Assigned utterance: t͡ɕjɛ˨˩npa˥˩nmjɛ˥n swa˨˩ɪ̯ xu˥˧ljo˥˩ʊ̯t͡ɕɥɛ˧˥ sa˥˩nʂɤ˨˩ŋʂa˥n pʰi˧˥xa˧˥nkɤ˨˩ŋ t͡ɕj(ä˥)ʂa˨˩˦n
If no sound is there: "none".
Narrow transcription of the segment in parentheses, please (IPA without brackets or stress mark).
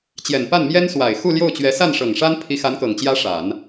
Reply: ä˥